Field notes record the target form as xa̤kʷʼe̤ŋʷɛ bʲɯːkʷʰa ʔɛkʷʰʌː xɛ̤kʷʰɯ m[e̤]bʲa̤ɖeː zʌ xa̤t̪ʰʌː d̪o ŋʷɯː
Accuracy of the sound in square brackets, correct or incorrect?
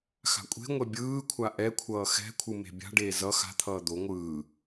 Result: correct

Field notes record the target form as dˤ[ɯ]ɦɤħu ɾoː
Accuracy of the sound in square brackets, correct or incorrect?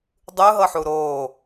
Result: correct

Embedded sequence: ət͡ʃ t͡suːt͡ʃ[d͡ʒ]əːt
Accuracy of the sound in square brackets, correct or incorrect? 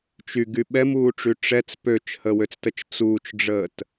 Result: incorrect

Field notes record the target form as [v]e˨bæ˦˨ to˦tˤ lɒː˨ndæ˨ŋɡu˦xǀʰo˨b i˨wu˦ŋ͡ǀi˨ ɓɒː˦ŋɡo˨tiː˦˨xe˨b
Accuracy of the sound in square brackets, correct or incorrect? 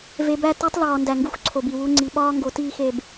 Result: correct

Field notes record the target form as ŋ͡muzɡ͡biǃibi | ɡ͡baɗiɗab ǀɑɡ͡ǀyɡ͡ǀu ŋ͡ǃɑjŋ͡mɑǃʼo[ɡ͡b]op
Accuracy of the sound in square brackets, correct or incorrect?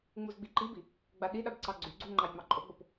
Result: correct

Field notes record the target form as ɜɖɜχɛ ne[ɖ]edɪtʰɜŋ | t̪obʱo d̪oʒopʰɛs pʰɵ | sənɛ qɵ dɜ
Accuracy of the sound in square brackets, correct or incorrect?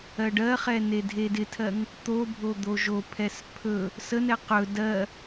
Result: incorrect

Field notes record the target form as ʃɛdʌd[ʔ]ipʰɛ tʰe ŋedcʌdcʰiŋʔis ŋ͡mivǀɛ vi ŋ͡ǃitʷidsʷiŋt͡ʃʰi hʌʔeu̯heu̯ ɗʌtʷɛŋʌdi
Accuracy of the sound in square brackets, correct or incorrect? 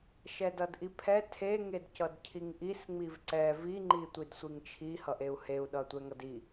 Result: correct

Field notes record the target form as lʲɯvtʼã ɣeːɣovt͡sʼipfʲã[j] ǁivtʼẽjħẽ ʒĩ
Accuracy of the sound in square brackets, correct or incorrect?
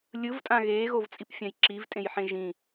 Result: correct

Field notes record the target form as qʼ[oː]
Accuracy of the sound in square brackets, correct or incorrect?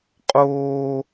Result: correct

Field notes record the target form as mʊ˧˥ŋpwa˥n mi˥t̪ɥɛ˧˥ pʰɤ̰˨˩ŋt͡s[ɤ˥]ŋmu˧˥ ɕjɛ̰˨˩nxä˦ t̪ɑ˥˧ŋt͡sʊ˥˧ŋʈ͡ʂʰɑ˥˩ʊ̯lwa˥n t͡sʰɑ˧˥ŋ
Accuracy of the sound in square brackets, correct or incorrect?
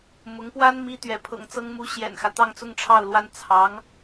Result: correct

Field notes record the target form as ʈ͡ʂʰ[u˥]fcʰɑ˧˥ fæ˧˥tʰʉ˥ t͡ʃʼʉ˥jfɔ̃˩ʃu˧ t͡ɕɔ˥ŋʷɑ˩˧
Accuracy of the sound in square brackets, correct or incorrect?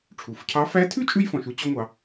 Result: incorrect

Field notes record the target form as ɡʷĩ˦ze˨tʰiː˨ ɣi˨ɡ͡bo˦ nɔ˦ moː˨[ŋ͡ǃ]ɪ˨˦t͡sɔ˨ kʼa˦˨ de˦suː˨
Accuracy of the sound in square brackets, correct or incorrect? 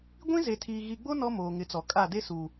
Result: incorrect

